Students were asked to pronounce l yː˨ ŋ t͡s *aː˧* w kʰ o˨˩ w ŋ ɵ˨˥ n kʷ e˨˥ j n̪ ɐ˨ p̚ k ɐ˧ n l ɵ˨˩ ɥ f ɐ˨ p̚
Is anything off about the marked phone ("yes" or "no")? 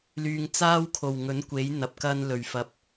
yes